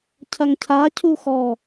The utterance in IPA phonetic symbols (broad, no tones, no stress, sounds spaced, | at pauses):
cʰ ɐ ŋ cʰ a cʰ u x ɔ